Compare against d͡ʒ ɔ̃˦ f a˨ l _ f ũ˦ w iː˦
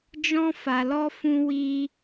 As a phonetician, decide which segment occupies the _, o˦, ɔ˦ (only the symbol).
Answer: ɔ˦